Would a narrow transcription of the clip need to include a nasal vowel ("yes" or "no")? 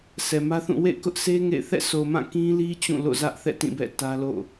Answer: yes